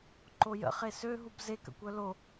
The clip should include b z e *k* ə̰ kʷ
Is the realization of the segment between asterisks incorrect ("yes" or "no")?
no